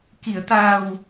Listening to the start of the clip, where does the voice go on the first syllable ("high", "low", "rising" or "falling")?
low